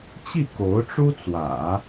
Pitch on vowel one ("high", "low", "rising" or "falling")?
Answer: falling